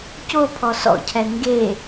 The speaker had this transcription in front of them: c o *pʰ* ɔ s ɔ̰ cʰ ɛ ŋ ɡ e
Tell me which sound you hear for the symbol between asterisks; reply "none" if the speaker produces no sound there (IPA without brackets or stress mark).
pʰ